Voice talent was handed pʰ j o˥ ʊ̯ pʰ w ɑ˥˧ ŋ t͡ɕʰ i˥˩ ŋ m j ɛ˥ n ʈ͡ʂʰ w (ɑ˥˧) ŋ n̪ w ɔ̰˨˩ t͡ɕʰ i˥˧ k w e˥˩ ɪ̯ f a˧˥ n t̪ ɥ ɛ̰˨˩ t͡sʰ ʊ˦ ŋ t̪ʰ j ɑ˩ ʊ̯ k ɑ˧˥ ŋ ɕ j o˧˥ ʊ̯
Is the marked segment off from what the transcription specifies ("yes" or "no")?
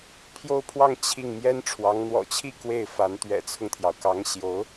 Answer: yes